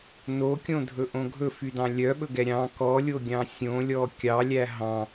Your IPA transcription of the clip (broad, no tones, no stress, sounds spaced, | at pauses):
n o kʲ õ dʱ ɵ ʔ õ ɡʱ ɵ f y d ɑ̃ lʲ œ ɓ ɵ ɡ ɛ ɾʲ ɑ̃ k ɔ lʲ o ɡʲ ɑ̃ sʲ õ lʲ ɔ kʲ ɑ lʲ æ ɦ ɑ̃